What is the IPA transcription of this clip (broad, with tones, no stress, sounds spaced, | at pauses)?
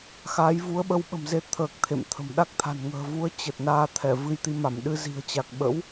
x a˨˦ j v u˨˦ ə̯ ɓ ə˧ w ɓ ə̤˨˩ m z e˧ t̪ʰ əː˨˩ k̚ t̪ʰ ḛ˧˨ m t̪ʰ ə̤˨˩ m ɗ a˦˥ k̚ t̪ʰ a̤˨˩ n ŋ ə̤ː˨˩ v u˨˦ ə̯ t͡ɕ ə˨˩ t̚ n aː˧ t̪ʰ ɛ˧˩ v ɨ˧ j t̪ i˧ m a˧˩ m ɗ ɨ˧ z i̤˨˩ ə̯ t͡ɕ a˨˩ k̚ ɓ ə̰˧˥ w